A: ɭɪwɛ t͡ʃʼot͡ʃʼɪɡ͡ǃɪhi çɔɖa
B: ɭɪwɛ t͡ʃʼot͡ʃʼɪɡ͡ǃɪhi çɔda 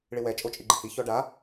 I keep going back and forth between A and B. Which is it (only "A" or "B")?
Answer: A